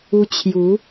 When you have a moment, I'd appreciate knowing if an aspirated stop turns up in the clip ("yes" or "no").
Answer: yes